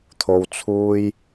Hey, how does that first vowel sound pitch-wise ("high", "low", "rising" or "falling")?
low